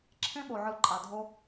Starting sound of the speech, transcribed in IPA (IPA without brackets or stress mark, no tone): ǁʰ